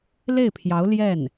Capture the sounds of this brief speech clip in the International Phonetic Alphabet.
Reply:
l e˥˩ ɪ̯ pʰ j ɑ˧˥ ʊ̯ l j ɛ˥˩ n

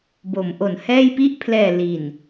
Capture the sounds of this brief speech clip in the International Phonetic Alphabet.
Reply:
b o˩˦ m ʔ o˩˦ n h ɛː˥˩ j p i˥˩ ʔ pʰ l ɛː˨˩ l i˨˩ n

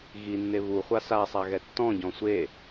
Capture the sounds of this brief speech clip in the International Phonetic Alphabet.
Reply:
ɣ i nː e β u χʷ a s a sˤ a ɣ ɛ tː ɔ̃ ɟ ɔ̃ sʷ e

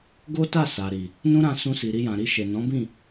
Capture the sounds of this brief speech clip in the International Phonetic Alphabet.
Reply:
ɡ o˦ t a˦˨ s a˨ ɾ i˨ | n ũ˦ ɾ ã˧ s ũ˧ s i˨ ɾ i˧ j ã˨ ɾ i˧ ʃ e˨ n ɔ̃˨˦ b ĩ˦˨

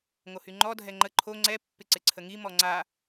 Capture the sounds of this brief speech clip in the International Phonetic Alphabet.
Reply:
ŋ o h y ŋ͡ǃ ɔ dʱ ɛ ŋ͡ǃ ə ǃʰ o ŋ͡ǀ ɛ pː ɪ ǀ ɪ ǀʰ ə ŋ i m ɔ ŋ͡ǀ a

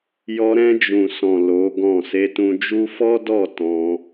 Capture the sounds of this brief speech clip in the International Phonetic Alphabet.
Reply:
j ɔ˧ ɾ ɛ̃˧ d͡ʒ ũ˨ s ɔ̃˨ l o˨˦ ɡ ɔ̃˦˨ s e˧ t ũ˧ d͡ʒ u˦ f ɔ˦ d ɔ˦˨ t ɔ̃˧

